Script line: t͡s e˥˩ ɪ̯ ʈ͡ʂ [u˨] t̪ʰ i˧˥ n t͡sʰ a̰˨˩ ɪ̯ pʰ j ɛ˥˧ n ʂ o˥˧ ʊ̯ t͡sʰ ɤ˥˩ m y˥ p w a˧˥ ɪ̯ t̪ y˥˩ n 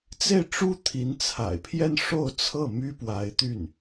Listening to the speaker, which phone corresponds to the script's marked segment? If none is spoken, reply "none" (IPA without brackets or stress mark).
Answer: u˥